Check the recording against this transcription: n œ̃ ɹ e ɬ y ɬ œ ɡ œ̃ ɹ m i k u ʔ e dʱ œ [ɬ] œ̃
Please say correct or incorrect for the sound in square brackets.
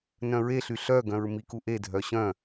incorrect